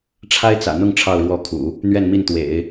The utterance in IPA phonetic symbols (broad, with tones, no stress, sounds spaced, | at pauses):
ʈ͡ʂʰ a˥ ɪ̯ t͡s ä̰˨˩ n̪ ʊ˥˧ ŋ ʈ͡ʂʰ ɑ˥˧ ʊ̯ ɻ w ɔ˥˩ kʰ ṵ˨˩˦ | n̪ ɥ ɛ˥˧ n m i˥˩ n t̪ w ḛ˨˩˦ ɪ̯